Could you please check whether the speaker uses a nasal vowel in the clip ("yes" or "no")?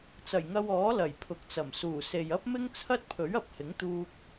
no